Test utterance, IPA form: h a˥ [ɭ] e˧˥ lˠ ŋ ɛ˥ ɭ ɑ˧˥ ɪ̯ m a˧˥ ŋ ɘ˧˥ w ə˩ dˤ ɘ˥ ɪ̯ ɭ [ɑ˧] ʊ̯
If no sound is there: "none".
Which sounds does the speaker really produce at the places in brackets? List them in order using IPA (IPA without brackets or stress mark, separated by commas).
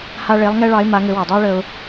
ɭ, ə˧